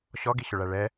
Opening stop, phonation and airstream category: plain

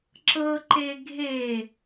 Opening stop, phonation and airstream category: click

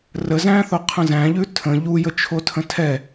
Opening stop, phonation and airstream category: aspirated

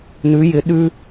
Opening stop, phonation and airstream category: implosive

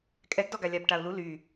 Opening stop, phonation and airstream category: ejective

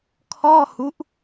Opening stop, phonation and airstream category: aspirated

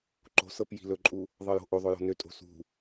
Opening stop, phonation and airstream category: click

